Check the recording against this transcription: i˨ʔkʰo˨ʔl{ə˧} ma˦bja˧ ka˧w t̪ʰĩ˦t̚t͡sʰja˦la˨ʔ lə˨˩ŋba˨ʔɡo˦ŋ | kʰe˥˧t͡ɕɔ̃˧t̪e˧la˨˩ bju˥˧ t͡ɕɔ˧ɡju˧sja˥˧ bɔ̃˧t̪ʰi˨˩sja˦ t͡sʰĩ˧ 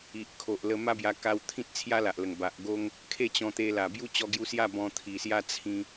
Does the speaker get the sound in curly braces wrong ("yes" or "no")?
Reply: no